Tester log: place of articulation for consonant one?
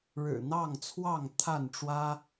retroflex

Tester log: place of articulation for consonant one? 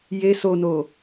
palatal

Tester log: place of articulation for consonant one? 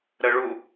alveolar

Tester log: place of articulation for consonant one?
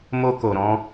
labial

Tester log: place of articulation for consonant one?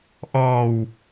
glottal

